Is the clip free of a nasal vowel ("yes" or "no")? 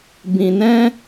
no